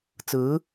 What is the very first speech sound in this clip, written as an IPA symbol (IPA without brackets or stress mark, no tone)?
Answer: t͡s